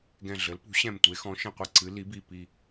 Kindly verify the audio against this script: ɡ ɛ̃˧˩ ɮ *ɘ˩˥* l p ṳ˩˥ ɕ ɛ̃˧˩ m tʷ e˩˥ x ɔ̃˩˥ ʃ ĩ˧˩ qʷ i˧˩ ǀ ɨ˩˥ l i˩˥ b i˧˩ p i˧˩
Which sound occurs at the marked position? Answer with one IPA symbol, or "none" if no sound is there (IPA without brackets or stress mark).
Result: ɘ˩˥